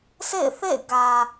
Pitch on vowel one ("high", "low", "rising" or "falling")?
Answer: falling